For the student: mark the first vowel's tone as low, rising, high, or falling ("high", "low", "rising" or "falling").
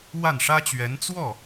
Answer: falling